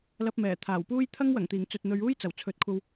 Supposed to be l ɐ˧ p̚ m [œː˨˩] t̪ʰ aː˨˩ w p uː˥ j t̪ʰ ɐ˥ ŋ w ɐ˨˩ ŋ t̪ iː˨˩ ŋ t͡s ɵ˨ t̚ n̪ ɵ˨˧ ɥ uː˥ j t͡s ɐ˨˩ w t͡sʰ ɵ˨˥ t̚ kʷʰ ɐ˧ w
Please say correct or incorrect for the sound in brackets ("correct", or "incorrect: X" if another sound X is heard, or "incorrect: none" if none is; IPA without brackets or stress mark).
incorrect: ɛː˨˩